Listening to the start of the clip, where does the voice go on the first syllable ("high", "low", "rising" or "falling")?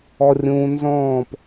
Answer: high